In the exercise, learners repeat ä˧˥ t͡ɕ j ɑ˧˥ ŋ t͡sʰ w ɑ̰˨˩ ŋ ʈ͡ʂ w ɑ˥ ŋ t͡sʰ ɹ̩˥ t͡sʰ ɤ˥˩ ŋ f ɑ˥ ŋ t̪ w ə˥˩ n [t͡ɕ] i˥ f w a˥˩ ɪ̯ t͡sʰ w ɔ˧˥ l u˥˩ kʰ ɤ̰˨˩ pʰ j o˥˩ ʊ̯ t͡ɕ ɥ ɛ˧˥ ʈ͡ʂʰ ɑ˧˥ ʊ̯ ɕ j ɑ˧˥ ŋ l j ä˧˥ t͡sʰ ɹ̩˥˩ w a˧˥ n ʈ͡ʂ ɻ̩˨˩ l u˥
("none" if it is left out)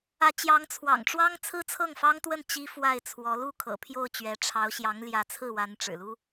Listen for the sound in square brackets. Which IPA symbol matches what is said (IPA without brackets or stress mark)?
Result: t͡ɕ